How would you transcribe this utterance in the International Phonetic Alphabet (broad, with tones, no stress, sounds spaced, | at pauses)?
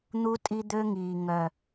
n̪ u˦ tʼ i˧ d̪ ø˧ ŋ iː˨ ŋ œ˨